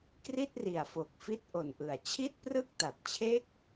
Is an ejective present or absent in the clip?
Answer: absent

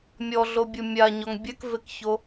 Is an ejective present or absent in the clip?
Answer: absent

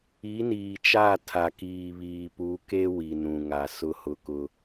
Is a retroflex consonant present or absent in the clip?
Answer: absent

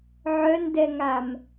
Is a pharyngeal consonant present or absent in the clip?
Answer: present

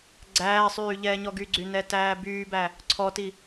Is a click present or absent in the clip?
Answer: present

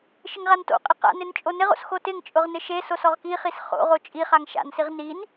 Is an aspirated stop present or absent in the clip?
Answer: absent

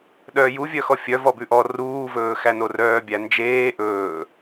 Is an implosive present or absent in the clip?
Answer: present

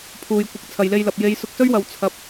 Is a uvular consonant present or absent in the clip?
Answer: absent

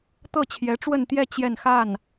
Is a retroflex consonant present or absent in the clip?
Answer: present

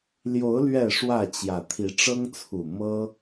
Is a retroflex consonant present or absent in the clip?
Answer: present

